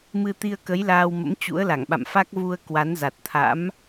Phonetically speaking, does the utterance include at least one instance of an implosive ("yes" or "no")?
yes